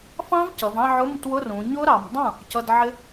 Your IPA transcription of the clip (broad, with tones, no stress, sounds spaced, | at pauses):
f ɑ̃˦˥ v c ʌ˩˧ v ɑ̃˥˧ ʕ ʊ˧˥˧ m t w ʊ˧˥˧ r ũ˩˧ ɲ ʊ˦˥ ɾ ɑ˩˧ m dˤ ũ˥˩ | c ʌ˧˥˧ d ʕ ɪ˦˥